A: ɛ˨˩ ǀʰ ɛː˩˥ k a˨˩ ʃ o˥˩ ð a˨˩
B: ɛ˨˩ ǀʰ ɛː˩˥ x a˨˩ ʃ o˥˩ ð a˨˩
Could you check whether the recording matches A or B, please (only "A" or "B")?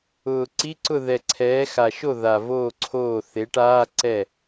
B